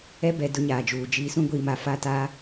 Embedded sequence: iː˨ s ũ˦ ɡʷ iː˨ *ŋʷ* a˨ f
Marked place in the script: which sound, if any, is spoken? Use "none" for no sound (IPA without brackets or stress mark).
m